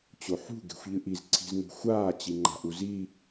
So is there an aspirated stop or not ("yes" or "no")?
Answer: yes